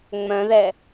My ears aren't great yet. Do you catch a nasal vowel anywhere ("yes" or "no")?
yes